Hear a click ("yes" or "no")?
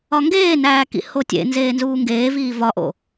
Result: no